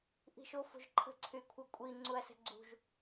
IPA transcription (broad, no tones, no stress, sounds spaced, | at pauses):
ʔ i̤ ʃ o f o̤ ʒ ǃʰ ə̤ ǀʰ y kʷʰ œ kʷʼ i ŋ͡ǀ u ɐ̯ s ə̤ ɡ͡ǀ ṳ ʒ